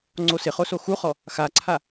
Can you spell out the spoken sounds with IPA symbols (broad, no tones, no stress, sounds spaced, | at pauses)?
ŋ͡ǀ o s ɪ χ o s o x u χ ɔ | x a ǀʰ a